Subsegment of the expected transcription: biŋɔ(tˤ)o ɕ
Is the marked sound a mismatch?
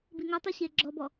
no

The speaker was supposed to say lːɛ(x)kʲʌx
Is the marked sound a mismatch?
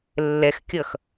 no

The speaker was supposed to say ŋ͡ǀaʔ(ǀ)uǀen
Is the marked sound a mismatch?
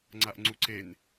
yes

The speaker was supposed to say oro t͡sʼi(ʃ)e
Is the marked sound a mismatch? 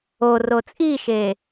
no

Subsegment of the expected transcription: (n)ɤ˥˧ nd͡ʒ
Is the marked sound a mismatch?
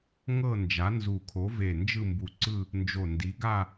yes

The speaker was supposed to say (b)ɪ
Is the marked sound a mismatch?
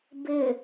no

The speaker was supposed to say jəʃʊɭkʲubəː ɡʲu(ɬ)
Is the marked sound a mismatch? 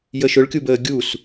yes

